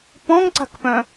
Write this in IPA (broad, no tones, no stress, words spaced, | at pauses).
pɔ̃ŋǀa̤kpœ̃